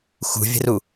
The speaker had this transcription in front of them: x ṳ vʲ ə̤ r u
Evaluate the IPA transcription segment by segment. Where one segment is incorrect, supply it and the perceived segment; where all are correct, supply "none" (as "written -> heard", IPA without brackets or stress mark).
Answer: none